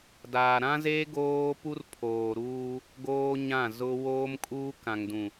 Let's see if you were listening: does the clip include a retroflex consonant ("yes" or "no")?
no